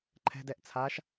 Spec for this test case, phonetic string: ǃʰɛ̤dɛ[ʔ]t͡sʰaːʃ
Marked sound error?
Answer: no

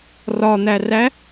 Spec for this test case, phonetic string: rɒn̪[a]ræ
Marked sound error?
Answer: yes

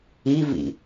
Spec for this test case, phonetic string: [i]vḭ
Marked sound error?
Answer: no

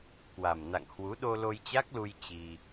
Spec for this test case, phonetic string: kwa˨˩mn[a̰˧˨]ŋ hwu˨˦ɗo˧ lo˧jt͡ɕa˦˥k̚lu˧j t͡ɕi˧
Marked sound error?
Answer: no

